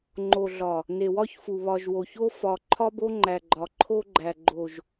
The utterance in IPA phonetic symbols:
ŋ͡ǃ o˨ ɮ ɒ˨ | n e˨ w ɒ˦ ç f u˨ β ɒ˨ ʒ w o˨ ç o˦ f ɒ˨ ǃʰ ɒ˦ b o˦ ŋ͡ǃ æ˨ ɡ͡ǃ ɒ˨ ǃʰ o˦ ɡ͡ǃ æ˨ ɡ͡ǃ o˨ ʒ

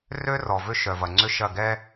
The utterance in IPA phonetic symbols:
r ø˦ r ɔ˨ v ʏ˦ ʃ œ˨ v ɐ˨ ŋ͡ǀ ʏ˦ ʃ ɐ˦˨ ɡ ɛ˦

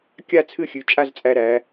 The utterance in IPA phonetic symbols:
kʲ a˥˧ t͡sʰ ɨ˥˧ xʲ ʉ˩˧ t͡ʃʼ a˥˧ z t͡sʼ æ˧ ɾ æ˩˧

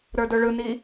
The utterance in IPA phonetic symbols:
ɾ ə˞ d ə˞ ɭ ɯ n i

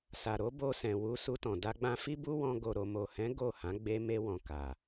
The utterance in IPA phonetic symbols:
s a˨ ɾ o˨˦ b o˧ s ɛ̃˨ w u˧ s u˧ t ɔ̃˨ d a˧ ɡ͡b ã˧ f i˦ b u˦ w ɔ̃˧ ɡ o˨ ɾ o˨ m o˨ h ɛ̃˨˦ ɡ o˦˨ h ã˨˦ ɡ͡b e˦ m e˧ w ɔ̃˨ k a˨

